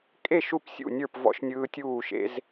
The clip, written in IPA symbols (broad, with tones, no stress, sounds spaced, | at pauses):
kʼ e˥˨ ʃ u˥˨ p sʲ ṵ˥˨ nʲ ə˞˥˨ p v ɔ̰˦ ʃ nʲ ɯː˦ tʲ uː˥˨ ʃ ḛ˦ z